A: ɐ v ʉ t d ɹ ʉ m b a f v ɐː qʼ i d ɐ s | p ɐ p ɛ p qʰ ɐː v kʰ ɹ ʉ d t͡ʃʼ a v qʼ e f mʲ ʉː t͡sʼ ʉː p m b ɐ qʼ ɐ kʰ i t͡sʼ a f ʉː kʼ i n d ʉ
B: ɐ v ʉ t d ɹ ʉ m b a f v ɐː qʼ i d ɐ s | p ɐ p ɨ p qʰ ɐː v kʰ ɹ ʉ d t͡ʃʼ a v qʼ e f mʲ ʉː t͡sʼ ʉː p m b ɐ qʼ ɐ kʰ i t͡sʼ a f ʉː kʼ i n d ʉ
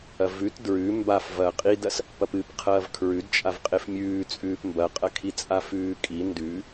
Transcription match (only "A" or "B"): B